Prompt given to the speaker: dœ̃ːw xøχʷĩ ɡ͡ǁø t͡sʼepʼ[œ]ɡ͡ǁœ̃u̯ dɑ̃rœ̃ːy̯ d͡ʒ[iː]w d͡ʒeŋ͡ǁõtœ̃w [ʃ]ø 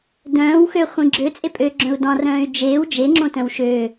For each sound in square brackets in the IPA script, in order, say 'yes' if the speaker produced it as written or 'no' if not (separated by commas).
no, no, yes